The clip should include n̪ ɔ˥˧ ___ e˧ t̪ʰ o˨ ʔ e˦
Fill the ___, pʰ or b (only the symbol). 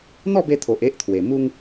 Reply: b